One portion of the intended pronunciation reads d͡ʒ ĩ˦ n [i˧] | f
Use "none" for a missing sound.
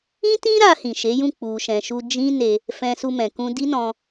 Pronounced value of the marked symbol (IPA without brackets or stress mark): e˧